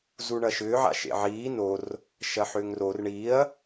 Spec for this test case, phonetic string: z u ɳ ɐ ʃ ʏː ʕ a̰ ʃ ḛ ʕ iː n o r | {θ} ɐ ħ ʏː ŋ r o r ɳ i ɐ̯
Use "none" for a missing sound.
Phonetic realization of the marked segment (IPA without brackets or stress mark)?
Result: ʃ